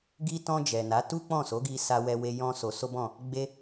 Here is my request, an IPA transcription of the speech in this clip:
ɡ i˧ t ɔ̃˧ d͡ʒ ɛ˨ n a˨˦ t u˦ k͡p ɔ̃˦˨ s o˨˦ ɡ i˧ s a˧ w ɛ˧ w e˧ j ɔ̃˦ s o˧ s o˦ b ɔ̃˦˨ | ɡ͡b e˧

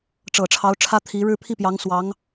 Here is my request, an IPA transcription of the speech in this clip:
ʈ͡ʂ ɤ˨˩ ʈ͡ʂʰ ɑ˧˥ ʊ̯ ʈ͡ʂʰ ä˥ t̪ʰ i˧˥ ɻ ɻ̩˥˧ pʰ i˥˩ p j ɑ˧˥ ŋ s w ɑ˧˥ ŋ

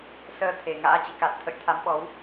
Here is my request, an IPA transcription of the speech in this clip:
s əː˧ t̪ʰ e˧˩ ŋ a̰ː˧˥ t͡ɕ ḭ˧˨ k a˨˩ t̚ t̪ʰ ə̰˧˨ j t̪ʰ a˨˦ m ɓ ɔ˨˦ w

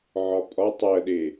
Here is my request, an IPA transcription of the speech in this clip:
ʕ ɒ pʼ ɒ tˤ ɜ ɗ e

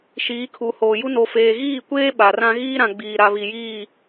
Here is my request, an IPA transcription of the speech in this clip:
ʃ iː˨˦ kʰ u˨ h oː˨ j u˦ n o˨ f eː˨ ɣ iː˦˨ kʷ eː˦ ɓ a˨ r ã˦ ɣ iː˦ ɾ ã˨ ɡ͡b iː˨ ɾ a˨ β i˨ j iː˦˨

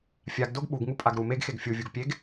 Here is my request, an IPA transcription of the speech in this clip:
fʲ a ɡ d o ɡ ɓ u ɡ ŋ u pʼ a ɡ ɾ u m e ɡ x e ɡ fʲ u vʲ u ɡ pʲ e ɡ

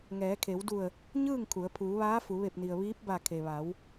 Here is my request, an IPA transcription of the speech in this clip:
ŋ ɛː˩˧ kʰ e˩˧ w d u˧˩ ə̯ | ɲ ɯː˥˨ ŋ kʰ u˩˧ ə̯ pʰ uː˩˧ ʋ aː˧˥ f u˩˧ ʋ e˧˩ p̚ n i˩ ə̯ ʋ iː˧˥ p̚ b a˧˩ kʰ e˩ ʋ a˩˧ w

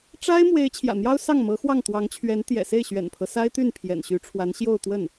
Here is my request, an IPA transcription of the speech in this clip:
ʈ͡ʂ a˥ ɪ̯ m w e˧˥ ɪ̯ t͡ɕʰ j ä̰˨˩ n̪ j ɑ˥ ʊ̯ s ɑ˥˩ ŋ m ɤ˧˥ x w ɑ˥˩ ŋ t̪ w ɑ˧˥ ŋ t͡ɕʰ ɥ ɛ˧˥ n t̪ j ɛ̰˨˩ s e˥˩ ɪ̯ ɕ ɥ ɛ̰˨˩ n pʰ ɤ˦ s a˥ ɪ̯ t̪ y˥˩ n pʰ j ɛ̰˨˩ n ɕ y˧˥ ʈ͡ʂʰ w a˧˥ n ɕ j o˥˧ ʊ̯ t̪ w ə˥˩ n

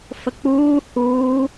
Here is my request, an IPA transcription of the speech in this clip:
f ə k͡p uː h uː

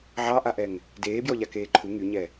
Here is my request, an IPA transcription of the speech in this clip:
ʕ ɑ ʔ a ʔ ɛ ŋ | d eː b j ɔ ʎ a k eː ǃʰ u ŋ y ɲ ɛ

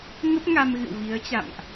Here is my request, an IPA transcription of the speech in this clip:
ŋ ə˦˥ p̚ ŋ a˧ m ɣ ɨ̰˧˨ w v i˨˦ ə̯ t͡ɕ a̰˧˨ m ʔ

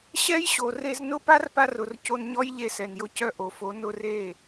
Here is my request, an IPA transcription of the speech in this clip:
ɕ ɛ˦ j ɕ o˨ r e˧ z n ʊ˦ p a˦ r p a˧ r ʊ˨ r c o˧ n ɲ ɔ˦ j ʎ e˧ s ɛ˨ n j ʊ˧ c œ˦˨ ʔ o˨ f o˨˦ n ʊ˧ r e˦˨

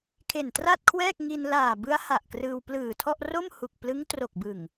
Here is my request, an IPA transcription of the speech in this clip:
kʰ e˨˩ n t r a˥˩ t̚ kʰ w ɛː˥˩ k̚ ŋ i˧ n l aː˨˩ b ɯ˦˥ a̯ h a˨˩ ʔ k r ɯː˧ w p l ɯː˨˩ tʰ ɔ˥˩ ʔ r o˥˩ m h u˨˩ k̚ p l ɯ˦˥ ŋ t r o˨˩ k̚ b ɯ˨˩ ŋ

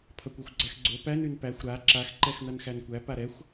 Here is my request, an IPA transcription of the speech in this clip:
pʰ ʌ kʷ a xʷ ɡ͡ǀ æ x ɡ͡ǀ o p æ n ʉ n p æ xʷ ɾ a ǁ a x ǃ ɛ x n ʌ n x æ n kʷ æ p a ɾ ɛ xʷ

